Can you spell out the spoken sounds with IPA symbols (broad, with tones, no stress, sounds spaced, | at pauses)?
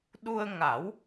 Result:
ɗ u˧ ə̯ ŋ a˨˩˦ w